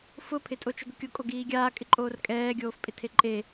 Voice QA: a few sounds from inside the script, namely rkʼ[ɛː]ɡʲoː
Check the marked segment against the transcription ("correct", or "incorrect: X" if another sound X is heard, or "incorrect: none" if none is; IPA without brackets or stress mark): correct